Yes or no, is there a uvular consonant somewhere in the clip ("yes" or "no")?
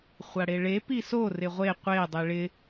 yes